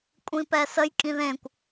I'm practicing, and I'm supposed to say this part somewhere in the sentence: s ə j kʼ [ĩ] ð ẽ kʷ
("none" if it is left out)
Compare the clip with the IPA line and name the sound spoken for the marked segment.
ĩ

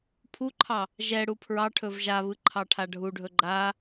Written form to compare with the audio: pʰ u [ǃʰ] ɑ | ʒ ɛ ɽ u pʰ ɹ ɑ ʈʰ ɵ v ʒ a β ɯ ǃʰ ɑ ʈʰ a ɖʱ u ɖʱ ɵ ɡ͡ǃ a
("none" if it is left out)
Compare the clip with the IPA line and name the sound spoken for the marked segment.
ǃʰ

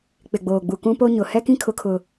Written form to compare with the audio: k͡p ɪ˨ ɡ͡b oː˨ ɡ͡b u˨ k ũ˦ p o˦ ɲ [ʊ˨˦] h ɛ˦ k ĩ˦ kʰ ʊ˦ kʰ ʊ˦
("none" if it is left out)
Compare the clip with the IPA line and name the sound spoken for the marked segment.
ʊ˨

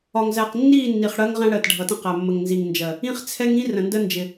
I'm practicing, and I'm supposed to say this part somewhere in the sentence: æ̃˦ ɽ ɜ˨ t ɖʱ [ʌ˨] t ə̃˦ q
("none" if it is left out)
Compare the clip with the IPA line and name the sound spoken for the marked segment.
ʌ˨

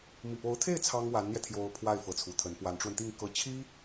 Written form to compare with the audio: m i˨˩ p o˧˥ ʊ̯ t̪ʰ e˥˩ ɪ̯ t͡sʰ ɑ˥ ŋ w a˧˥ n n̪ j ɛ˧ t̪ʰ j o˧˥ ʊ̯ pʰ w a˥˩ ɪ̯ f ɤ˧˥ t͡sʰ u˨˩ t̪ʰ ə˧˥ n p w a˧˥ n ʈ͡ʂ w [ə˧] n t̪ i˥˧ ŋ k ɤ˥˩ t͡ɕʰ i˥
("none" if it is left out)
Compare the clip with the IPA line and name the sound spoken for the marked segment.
ə˧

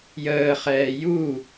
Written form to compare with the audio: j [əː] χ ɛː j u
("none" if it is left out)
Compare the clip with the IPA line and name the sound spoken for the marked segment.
əː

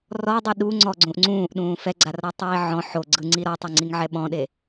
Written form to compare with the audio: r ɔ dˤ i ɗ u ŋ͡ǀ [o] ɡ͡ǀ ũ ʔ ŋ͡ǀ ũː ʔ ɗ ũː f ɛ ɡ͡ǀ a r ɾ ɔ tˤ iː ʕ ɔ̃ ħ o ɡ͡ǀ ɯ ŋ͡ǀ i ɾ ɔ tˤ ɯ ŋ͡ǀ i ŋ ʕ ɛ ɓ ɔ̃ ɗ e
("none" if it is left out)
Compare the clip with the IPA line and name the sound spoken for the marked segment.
ɔ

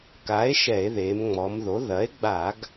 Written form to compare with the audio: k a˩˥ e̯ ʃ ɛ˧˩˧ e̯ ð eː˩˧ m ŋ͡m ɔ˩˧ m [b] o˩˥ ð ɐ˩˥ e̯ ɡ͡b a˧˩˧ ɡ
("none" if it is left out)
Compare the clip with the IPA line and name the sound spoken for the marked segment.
ð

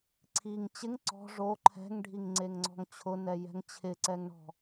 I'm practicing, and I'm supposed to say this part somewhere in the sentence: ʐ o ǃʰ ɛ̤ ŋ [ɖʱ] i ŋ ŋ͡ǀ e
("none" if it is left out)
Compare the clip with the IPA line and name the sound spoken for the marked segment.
ɖʱ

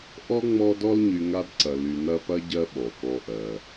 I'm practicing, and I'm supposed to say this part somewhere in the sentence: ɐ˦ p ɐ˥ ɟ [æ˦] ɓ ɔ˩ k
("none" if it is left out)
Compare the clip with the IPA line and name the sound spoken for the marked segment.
ɜ˦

